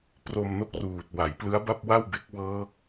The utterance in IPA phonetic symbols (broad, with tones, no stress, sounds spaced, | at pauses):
p r o˧ m n o˥˩ k̚ r uː˨˩ t̚ w a˩˦ j p l ɯ˦˥ a̯ b a˥˩ p̚ w a˥˩ w b e˦˥ k̚ w ɤː˦˥ k̚